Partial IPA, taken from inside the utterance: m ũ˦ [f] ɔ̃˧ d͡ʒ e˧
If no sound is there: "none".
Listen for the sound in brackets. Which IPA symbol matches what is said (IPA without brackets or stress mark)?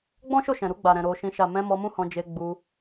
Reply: h